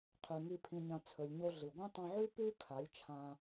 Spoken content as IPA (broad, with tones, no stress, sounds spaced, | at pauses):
qʰ ʉ˨ ŋ i˧ pʰ ĩ˧ ɲ ɐ̃˧ t͡sʰ ɵ˨ lʲ ɲ o˧ ɮ ɨ˨ ɡʷ ĩ˦ tˤ ɐ̃˧ ʕ ʉ˦ p ʉ˦ kʰ a˨˦ lʲ t͡ʃʰ ã˧